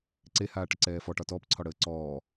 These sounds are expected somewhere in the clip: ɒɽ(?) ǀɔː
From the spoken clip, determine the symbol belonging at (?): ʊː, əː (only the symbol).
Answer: əː